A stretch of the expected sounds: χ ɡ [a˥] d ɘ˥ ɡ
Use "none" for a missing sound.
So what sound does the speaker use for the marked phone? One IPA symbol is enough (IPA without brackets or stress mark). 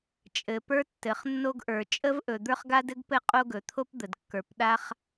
a˥